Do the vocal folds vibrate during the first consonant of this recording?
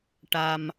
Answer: no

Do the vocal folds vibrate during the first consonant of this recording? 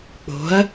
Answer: no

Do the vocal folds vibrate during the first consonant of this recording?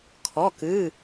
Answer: no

